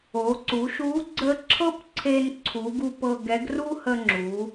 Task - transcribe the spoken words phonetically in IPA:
o˩˧ǀu˩˧ʃu˧˥ ɡ͡ǀə˧ ǁʰɤ˥pǀʰe˧n ǀʰu˩˧ ɡu˧pɤ˧ ɡɛ˧˥ɡ ru˥ hə˧ŋ͡ǁu˩˧

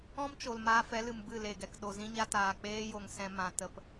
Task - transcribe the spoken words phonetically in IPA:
ɔ̃˦mt͡ʃo˨l maː˧fɛ˨˦lɨ˨m bɨ˦˨le˨ɡɛ˨k ɗo˨zĩ˧ɲa˧taː˨ k͡peː˧jo˨ŋ sɛ̃˧mã˨tə˧p

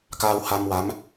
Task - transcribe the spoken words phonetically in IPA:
kaː˧w ha˧m wa˧˥m

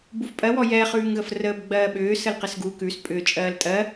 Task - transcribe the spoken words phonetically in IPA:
bufpʼɜwɔ jɛχʉːŋɣəf rəːbɡ͡bɜːɓʏː səlqɘsɡu kʉs pʼʏ t͡ʃʼɜːltʼɜ

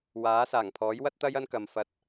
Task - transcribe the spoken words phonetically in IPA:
waː˨˥saː˨˩ŋ pʰɔː˨˥jwɐ˥t̚t̪ɐ˥j ɐ˥nkɐ˨mfɐ˧t̚

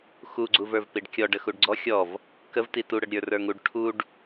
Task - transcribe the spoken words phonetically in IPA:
xuɡ͡ǀuvə˞v piɖkʲɔ ɖəxuɖɡ͡ǀɔ xʲɔv | kəvti tuɽəɖɾʲə˞ rə˞ŋuɖ ʈʰuɖ

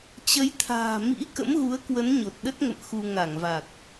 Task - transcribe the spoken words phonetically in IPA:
t͡ɕə˨˦jt̪ʰa̤ː˨˩ mḭ˧˥ kə̰˧˥mɣu˨˦ə̯kwə˨˦n ɲo˨˩t̚ɗə˦˥t̚ŋə̰˧˨m xu˧ ŋa˧˩ŋva˨˩k̚

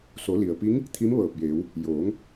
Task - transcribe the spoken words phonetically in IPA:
so˩˧li˩ə̯pi˧˥ŋ | t̪ʰi˧˥mʋɤː˧˩p̚jeː˩˧w | joː˩˧ŋ

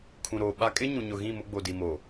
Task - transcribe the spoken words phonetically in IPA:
kʰũ˨ɾoː˨ ɓa˦ kʼɪ˦ɲũ˨ɲʊ˨ɣĩ˦˨ mʊ˦ɡ͡bo˨di˨ mo˨

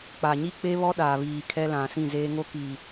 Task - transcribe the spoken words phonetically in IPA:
k͡pa˨ɲi˦k͡pe˦βɔ˦ ɗaː˨ βiː˨ kʰɛ˦lã˨sĩ˦˨zeː˦ ŋo˦ki˨

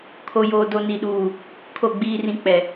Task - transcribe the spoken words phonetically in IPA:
kʰo˨joː˨do˨ ni˨ɗuː˨ | kʰo˦˨ɡ͡biː˦rĩ˦ k͡pɛ˨

